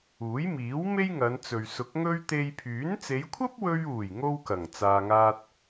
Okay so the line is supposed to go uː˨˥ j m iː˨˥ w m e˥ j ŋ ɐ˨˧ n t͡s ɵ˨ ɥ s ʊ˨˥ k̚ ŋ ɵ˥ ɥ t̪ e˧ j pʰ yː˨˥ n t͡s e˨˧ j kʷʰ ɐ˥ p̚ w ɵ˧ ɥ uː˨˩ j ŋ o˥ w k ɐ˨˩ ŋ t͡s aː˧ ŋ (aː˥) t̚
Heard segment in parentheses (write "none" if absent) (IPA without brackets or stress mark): aː˥